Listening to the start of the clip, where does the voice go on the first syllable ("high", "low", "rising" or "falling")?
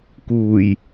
low